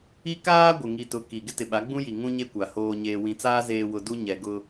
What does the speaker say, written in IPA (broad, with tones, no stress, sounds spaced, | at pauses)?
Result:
i˦ k aː˦ ɡʷ ɪ˨ ŋ i˨ t ʊ˨ k i˨ ɡ ɪ˦ t ɪ˨ ɓ a˨˦ ɡ͡b ũ˦ j i˨ ŋ ũ˦ ɲ e˦ kʷ a˨ h oː˨ ɲ eː˨ w ĩ˨ t͡s aː˦ z eː˨ w ʊ˨ d u˦ ɲ ɛ˨ ɡ ʊ˦